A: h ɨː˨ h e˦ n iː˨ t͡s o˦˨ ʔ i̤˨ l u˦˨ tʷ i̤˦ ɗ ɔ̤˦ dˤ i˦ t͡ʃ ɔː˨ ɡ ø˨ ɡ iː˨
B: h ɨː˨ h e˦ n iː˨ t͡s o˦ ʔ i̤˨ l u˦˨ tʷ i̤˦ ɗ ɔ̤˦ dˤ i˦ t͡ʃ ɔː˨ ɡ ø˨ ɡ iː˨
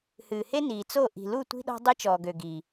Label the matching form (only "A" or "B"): A